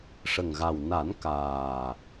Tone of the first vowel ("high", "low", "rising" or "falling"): low